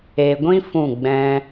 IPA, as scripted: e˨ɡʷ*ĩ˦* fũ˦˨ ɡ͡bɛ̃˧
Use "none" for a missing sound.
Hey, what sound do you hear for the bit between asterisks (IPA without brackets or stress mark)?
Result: ĩ˦